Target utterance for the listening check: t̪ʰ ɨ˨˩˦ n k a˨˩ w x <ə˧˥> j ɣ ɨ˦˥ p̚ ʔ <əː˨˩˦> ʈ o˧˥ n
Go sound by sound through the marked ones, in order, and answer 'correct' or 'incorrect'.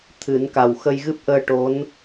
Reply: incorrect, incorrect

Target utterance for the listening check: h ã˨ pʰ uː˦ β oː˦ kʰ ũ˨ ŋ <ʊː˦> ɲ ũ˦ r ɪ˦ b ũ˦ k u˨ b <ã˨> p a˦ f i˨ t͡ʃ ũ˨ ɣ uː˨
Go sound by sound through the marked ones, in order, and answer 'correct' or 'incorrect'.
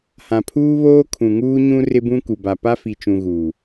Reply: incorrect, incorrect

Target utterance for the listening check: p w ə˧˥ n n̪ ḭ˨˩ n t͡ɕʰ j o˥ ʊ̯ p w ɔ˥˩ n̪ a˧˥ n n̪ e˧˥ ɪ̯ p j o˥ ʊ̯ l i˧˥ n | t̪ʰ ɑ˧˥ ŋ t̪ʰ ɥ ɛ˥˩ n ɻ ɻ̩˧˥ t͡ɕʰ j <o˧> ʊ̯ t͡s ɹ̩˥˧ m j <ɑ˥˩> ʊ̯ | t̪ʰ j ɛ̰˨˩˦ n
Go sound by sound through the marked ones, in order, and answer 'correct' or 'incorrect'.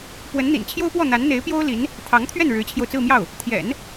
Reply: correct, correct

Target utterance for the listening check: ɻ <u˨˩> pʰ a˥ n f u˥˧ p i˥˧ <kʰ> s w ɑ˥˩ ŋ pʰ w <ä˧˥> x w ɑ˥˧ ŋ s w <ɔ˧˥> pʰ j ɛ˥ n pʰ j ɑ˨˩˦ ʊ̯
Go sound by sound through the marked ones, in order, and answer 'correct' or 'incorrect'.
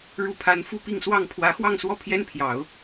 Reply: incorrect, incorrect, correct, incorrect

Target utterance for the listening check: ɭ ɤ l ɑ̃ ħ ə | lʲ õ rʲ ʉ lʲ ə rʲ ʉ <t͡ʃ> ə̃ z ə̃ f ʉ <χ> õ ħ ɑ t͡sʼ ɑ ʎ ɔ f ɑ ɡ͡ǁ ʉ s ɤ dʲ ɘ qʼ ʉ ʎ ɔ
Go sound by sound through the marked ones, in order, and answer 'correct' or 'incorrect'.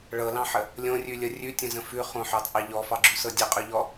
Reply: incorrect, correct

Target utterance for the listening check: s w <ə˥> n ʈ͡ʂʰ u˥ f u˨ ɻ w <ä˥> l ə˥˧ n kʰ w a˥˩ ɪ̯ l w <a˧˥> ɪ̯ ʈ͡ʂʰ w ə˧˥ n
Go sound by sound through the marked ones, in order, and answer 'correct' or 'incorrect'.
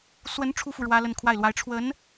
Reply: incorrect, correct, correct

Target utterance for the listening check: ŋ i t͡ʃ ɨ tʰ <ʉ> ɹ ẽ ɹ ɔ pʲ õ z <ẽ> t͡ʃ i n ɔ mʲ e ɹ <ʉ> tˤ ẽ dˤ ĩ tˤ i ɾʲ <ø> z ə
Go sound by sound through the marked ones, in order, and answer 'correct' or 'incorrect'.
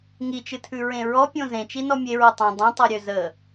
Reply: correct, correct, incorrect, correct

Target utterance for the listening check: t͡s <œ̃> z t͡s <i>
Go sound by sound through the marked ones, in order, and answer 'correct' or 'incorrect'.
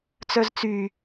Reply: incorrect, incorrect

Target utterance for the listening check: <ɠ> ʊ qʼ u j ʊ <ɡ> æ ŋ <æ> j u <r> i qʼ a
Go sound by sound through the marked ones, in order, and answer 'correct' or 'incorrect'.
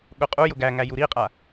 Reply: correct, correct, correct, incorrect

